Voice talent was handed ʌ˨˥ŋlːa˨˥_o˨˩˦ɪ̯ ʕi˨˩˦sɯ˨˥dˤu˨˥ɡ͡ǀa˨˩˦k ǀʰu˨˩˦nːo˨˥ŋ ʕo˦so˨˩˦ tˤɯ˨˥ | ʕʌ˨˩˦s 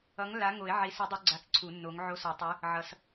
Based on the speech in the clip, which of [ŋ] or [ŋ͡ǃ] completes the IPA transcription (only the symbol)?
ŋ